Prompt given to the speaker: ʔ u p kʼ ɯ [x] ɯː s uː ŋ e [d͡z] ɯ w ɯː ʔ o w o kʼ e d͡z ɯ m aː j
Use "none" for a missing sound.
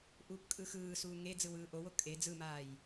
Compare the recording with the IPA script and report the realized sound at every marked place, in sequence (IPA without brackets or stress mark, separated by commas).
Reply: x, d͡z